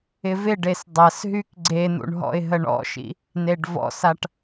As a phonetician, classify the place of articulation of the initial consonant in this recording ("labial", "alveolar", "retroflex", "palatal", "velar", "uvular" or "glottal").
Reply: labial